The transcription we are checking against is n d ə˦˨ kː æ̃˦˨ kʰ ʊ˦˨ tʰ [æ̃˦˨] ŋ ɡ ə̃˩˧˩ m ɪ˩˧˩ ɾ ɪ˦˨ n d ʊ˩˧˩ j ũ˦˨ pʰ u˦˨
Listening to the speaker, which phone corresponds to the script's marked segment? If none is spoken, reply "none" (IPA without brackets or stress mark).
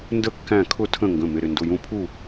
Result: ə̃˦˨